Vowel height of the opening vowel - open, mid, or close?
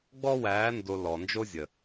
mid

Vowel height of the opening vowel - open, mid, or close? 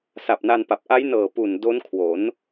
open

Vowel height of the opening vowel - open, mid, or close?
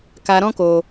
open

